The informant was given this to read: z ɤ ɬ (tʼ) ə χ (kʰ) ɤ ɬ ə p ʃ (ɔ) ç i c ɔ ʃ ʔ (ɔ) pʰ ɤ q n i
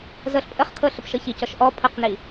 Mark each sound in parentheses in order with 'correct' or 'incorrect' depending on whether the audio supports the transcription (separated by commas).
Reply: incorrect, correct, incorrect, correct